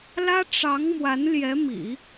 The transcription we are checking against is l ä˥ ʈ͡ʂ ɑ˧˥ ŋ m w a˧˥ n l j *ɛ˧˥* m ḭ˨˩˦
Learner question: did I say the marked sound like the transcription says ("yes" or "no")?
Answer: yes